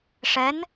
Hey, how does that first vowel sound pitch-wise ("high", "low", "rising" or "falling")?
rising